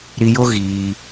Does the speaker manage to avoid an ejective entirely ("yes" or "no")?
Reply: yes